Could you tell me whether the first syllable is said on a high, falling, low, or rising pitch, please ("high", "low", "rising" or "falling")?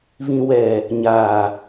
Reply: low